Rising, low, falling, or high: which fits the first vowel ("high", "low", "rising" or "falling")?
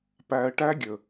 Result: low